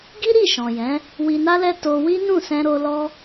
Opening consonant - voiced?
yes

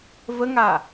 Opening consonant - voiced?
yes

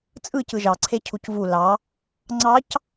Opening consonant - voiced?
no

